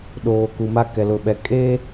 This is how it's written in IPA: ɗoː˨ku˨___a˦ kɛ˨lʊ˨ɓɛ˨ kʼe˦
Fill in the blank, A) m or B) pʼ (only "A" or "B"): A